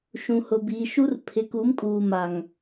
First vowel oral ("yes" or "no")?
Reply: no